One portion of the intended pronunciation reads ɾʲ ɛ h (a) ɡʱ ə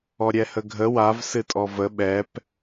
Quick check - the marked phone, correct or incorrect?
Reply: incorrect: ə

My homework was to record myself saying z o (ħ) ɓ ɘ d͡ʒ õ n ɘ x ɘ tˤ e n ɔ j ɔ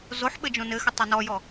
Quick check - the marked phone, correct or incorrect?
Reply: correct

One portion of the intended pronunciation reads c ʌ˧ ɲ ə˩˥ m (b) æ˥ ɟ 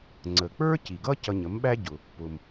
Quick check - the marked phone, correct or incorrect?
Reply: incorrect: ɓ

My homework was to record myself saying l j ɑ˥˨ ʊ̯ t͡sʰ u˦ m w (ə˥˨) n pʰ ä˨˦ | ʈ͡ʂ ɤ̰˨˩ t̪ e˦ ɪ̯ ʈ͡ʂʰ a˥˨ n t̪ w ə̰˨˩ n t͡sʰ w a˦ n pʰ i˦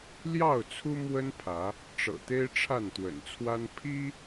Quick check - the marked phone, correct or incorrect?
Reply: incorrect: ə˦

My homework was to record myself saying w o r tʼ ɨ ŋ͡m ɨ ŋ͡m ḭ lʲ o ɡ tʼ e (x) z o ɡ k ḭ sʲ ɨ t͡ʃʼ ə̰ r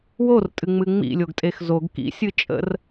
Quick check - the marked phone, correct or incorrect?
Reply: correct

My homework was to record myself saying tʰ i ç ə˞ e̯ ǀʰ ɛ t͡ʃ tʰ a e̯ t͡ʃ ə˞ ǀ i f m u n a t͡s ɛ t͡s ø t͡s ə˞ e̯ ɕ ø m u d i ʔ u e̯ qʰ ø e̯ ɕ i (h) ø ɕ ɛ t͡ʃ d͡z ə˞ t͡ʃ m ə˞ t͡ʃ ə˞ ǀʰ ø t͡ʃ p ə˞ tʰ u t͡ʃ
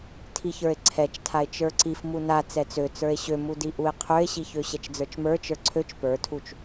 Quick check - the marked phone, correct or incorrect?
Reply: incorrect: ç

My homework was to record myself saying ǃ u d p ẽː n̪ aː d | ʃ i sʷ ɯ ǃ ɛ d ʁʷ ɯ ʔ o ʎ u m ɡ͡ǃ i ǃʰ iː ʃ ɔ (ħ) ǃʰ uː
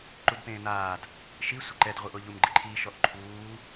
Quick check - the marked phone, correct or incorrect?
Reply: incorrect: ʔ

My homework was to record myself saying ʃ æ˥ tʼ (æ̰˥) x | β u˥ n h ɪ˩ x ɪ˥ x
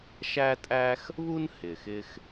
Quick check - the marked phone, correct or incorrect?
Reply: incorrect: æ˥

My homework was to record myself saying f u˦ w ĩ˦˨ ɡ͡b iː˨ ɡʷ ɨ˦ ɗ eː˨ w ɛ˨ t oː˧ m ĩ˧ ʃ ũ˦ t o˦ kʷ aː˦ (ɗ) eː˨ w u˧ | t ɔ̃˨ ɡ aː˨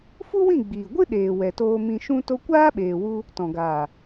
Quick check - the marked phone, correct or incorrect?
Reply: incorrect: ɓ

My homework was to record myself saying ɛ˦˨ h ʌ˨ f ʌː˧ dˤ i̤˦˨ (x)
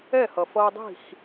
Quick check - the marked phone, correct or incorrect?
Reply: correct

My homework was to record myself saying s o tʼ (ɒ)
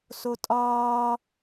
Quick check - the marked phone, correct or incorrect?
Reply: incorrect: ɒː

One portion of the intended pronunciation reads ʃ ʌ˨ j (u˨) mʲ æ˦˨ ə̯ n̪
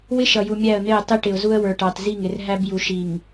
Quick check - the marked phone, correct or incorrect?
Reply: correct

